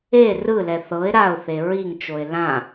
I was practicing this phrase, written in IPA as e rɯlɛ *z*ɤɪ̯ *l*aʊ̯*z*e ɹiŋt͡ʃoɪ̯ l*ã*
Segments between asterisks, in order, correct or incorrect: incorrect: θ, incorrect: ɾ, incorrect: θ, correct

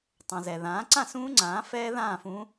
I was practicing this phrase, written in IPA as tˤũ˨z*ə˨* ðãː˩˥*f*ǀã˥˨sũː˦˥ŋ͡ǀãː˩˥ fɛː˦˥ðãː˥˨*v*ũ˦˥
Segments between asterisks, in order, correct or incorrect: incorrect: ɛ˨, incorrect: none, incorrect: f

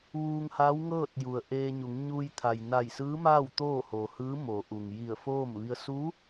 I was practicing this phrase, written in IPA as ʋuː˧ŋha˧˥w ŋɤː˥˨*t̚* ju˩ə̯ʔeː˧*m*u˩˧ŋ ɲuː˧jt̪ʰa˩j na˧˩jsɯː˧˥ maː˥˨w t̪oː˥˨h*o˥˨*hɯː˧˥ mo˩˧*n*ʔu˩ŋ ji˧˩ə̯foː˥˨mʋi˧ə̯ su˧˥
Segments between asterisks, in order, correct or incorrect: correct, incorrect: ɲ, incorrect: o˩, incorrect: none

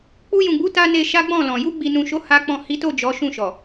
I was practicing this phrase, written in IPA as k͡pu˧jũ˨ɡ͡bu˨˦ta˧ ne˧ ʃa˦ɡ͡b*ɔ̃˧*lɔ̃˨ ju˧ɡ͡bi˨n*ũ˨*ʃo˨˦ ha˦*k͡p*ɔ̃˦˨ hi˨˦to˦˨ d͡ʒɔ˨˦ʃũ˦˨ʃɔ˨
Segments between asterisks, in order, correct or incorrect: incorrect: ɔ̃˦˨, correct, correct

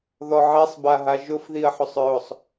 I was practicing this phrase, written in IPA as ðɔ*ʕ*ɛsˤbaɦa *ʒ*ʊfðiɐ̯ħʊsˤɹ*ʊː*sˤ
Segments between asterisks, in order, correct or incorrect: correct, correct, incorrect: ʊ

